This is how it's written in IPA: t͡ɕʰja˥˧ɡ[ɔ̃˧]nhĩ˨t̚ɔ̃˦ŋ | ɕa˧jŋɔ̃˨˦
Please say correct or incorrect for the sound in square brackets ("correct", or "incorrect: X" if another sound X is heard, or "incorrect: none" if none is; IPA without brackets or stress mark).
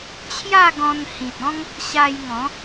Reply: correct